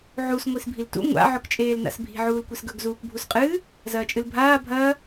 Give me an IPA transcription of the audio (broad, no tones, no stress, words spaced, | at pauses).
ʕus ŋʷisbʱiltṵ ŋʷa̰ ʕɵkt͡ʃʼeːlna̰sbʱi̤ ʕuːlkʷesɡɵɡ zuːkbʱusqʼɨː | zɐːt͡ʃʼɨlbʱaː bʱɐː